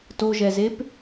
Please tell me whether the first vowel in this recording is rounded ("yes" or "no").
yes